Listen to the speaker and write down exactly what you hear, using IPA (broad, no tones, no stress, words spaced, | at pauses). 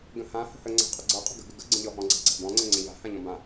ɡə̃hã hə̤hə ŋ͡ǀa̤qʼəɡ͡ǀʌ qʼə̤ɡə̤ ɡɘɡə ɡ͡ǀə̃ʎɔɦɔ̃ ɡ͡ǀa̤ǀa̤bɔ̃ ŋ͡ǀə̃ŋ͡ǀə̃ʎa̤ hãʎɔ̃bã